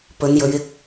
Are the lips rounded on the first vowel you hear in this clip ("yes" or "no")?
yes